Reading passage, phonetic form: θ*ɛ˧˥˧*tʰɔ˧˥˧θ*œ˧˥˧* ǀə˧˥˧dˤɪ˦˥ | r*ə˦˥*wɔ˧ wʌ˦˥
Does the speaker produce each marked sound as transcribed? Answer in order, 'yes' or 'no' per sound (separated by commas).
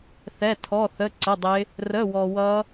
yes, no, no